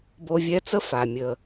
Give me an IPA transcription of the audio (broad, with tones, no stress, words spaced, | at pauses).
bo˧vʲɛ˧˥t͡sə˥ fa˩mʲə˩